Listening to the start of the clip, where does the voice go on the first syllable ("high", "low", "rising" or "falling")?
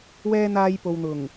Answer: high